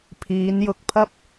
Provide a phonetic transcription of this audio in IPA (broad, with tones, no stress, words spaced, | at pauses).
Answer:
pʰiː˨˧n jʊ˨k̚pʰɐ˥p̚